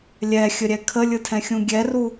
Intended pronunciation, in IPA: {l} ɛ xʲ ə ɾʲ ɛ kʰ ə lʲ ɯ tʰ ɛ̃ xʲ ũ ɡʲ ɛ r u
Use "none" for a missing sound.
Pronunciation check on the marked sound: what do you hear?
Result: lʲ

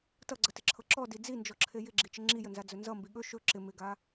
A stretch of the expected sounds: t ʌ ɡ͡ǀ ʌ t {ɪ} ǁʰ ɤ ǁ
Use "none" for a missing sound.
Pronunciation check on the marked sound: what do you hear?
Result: ɪ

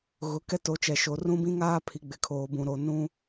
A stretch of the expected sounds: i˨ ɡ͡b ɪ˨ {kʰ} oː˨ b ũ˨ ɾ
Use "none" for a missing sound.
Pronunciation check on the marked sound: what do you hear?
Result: kʰ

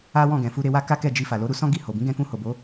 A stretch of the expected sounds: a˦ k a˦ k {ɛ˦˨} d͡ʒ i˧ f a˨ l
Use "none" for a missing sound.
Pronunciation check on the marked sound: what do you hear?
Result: ɛ˦˨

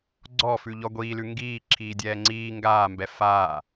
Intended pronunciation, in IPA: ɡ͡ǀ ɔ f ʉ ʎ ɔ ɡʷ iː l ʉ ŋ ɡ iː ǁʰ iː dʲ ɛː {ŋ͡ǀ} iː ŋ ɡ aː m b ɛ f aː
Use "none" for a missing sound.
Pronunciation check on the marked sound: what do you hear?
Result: ŋ͡ǀ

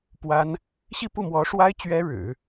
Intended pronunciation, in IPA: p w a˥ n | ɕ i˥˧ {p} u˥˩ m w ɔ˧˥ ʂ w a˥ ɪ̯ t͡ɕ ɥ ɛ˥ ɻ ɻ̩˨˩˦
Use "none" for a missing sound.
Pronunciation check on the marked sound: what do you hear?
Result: p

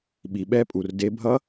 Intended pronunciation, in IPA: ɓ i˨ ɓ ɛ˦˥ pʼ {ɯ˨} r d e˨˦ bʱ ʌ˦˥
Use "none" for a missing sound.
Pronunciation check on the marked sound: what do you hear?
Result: u˨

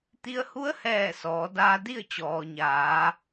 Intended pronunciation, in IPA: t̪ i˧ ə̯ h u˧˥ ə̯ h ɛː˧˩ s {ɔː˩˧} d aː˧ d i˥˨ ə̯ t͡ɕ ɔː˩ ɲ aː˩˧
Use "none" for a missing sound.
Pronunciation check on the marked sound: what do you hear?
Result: ɔː˩˧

